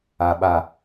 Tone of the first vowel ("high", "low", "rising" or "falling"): low